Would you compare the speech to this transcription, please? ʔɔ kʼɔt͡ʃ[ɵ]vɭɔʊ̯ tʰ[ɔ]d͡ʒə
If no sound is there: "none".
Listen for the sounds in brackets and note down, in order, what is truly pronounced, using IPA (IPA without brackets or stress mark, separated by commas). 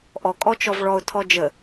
ɔ, ɔ